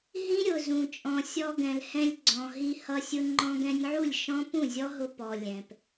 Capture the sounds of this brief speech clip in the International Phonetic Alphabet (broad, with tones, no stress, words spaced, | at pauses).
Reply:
ɦĩ˦ɾʲʊ˨zũ˨ t͡ʃʼɔ̃˨sʲɔ˧ɡɛ̃˨lhɛ̃˧lʲ ɡ͡ǀɔ̃˨ɦi˧ hʌ˧sʲʊ˧ ŋ͡ǃɔ̃˧ɡɛ̃˧nʲʕu˦˨lʲ ʃɔ̃˦ pũ˦˨zʲɔ˦ɦʊ˧ pɔ˨ lʲɛ̃˨p